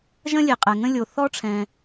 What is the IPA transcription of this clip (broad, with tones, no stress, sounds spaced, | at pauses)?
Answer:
ʒ ə̃˥ lʲ e˩ qʼ ɛ˩ ŋ ə̃˥ lʲ o˩ θ ɔ˥ ʈ͡ʂʰ ɛ̃˩